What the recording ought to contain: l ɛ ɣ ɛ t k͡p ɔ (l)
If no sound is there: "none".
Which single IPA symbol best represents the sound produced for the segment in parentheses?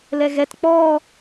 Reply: none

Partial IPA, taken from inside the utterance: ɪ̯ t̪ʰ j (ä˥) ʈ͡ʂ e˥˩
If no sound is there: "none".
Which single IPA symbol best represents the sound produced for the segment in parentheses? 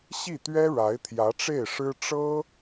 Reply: ä˧˥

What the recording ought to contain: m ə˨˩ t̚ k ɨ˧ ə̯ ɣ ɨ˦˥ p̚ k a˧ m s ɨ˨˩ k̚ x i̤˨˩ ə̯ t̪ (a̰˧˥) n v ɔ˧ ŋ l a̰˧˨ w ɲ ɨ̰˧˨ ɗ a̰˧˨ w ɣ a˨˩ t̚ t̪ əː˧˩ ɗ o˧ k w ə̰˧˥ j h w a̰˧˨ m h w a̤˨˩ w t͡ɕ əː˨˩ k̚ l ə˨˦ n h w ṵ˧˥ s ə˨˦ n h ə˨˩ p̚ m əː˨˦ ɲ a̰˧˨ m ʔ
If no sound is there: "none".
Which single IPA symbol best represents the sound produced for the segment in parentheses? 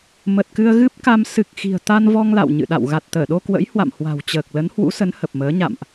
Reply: a˧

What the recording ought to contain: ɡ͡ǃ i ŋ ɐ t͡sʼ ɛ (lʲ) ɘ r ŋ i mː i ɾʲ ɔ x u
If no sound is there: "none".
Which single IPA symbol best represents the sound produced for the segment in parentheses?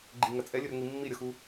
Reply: lʲ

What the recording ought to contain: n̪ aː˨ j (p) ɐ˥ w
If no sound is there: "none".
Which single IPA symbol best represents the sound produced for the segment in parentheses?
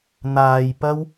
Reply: p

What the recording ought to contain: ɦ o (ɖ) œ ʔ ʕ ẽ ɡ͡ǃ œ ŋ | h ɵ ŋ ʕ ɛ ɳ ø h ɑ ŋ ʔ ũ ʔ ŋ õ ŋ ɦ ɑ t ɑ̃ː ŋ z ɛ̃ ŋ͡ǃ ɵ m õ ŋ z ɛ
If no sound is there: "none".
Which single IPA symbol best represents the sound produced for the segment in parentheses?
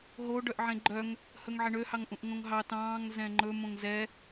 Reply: ɖ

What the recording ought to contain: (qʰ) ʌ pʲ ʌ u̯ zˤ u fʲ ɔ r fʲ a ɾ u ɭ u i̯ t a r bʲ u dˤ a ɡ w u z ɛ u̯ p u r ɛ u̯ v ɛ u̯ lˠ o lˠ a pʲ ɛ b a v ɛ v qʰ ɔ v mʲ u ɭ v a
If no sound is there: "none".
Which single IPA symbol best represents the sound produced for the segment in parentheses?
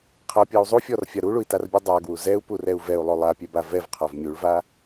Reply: qʰ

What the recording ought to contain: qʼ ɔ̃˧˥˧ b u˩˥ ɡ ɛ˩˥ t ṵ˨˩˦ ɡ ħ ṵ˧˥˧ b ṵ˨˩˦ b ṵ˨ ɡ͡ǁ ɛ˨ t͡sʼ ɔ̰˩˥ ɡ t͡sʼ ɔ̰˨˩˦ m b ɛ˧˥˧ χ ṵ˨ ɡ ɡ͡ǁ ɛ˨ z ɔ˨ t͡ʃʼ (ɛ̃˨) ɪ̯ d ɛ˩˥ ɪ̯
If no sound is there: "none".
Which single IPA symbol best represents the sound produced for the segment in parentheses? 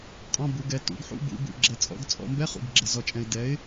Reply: ɛ̃˨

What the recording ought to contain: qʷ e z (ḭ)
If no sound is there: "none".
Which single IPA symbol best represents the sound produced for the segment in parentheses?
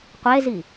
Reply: i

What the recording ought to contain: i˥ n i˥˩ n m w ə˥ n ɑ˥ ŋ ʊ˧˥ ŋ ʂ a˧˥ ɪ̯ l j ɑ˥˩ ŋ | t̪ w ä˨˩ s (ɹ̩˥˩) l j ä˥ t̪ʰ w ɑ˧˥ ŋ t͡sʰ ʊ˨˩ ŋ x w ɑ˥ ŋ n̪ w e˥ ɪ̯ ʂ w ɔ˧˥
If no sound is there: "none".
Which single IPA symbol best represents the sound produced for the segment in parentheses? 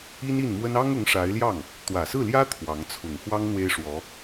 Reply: ɹ̩˥˩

